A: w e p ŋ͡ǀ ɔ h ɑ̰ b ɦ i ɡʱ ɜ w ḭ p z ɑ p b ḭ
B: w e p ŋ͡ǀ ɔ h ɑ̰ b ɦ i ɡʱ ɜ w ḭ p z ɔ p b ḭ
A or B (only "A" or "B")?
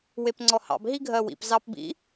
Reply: A